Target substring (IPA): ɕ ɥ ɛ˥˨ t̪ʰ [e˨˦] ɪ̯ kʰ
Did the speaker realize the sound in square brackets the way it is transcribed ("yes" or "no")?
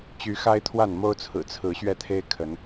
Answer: no